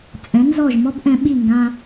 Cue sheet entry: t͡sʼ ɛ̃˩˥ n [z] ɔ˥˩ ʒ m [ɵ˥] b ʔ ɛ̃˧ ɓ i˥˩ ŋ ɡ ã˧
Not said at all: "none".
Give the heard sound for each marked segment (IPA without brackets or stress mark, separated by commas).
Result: z, ɔ˥